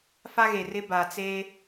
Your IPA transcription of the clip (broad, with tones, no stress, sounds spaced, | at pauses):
f a˦ ɣ e˨ r ɪ˦ b a˨ t͡s eː˦